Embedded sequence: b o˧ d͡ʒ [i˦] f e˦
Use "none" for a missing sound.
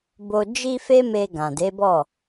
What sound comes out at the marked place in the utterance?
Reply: i˦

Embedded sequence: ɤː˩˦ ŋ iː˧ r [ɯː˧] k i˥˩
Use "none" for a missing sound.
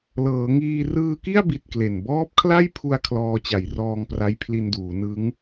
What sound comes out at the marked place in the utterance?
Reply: ɯː˧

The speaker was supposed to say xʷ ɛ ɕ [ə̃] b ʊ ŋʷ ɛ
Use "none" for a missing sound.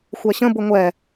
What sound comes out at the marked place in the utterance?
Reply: ə̃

